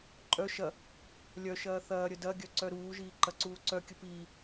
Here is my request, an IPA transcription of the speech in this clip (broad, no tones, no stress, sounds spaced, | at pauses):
ǃʼ œ ʃ ɐ | lʲ œ ʃ ɐː θ ɐː ɾʲ ə d ɐ ɡʲ œ ǀ œ ɾ uː ʒ iː ǃ ɐ ǀ uː ǀ œ kʲ ə p iː